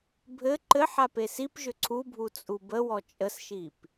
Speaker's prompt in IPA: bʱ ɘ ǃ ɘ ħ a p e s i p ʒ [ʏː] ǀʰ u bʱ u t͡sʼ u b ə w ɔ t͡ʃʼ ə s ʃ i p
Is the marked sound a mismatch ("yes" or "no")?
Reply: yes